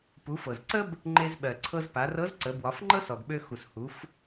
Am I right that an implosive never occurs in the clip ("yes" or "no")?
no